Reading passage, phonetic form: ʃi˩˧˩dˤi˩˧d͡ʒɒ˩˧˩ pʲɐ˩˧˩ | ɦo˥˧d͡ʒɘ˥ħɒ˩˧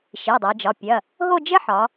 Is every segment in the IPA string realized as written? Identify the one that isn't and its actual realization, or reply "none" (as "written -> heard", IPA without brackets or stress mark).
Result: none